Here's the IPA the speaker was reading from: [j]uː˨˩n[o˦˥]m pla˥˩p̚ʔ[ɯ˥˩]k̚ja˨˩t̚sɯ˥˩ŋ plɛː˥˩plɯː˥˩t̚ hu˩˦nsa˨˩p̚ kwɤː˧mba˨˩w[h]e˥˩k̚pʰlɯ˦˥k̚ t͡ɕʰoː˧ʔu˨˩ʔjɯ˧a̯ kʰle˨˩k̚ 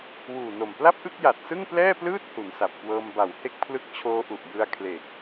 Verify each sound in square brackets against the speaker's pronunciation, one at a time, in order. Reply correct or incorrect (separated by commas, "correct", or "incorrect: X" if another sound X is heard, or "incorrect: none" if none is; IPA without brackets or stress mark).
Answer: incorrect: w, incorrect: o˨˩, correct, correct